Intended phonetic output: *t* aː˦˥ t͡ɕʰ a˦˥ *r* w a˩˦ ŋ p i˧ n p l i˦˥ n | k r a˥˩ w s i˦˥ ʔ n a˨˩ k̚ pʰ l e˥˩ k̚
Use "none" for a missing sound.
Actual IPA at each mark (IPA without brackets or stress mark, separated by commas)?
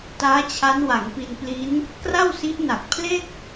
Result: t, n